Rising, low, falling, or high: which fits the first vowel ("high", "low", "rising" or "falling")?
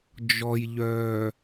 low